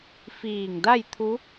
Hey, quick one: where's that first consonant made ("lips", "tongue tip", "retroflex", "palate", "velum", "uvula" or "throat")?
lips